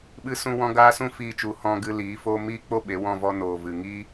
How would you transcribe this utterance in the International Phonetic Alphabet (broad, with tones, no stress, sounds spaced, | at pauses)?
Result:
ɓ ɨ˦ s ũ˦ w ɔ̃˦ ɡ aː˦ s ũ˦ f iː˧ t͡ʃ u˨˦ h ɔ̃˧ ɡ ɨ˧ l iː˨˦ f oː˦ m iː˦ k͡p o˦ ɓ e˨˦ w ɔ̃˦˨ v ɔ˧ n oː˨ v ɨ˨ ŋ iː˦